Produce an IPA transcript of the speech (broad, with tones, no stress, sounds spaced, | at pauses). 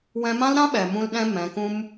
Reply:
w ɛ̃˧ m ã˦ l ɾ ã˦ ɓ ɛ˨ m ũ˧ l ɗ ɛ̃˧ m ɛ̃˨˦ k ũ˦ m